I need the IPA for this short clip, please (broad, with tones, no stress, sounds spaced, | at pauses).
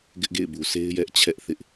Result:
ɡ ɪ˦ ʔ ɡ ḛ˦˨ ɪ̯ b u˨ sʰ e˦ ɪ̯ j ɛ˦ ʔ t͡ɕʰ ɛ˦ ʔ θ ɪ˦ ʔ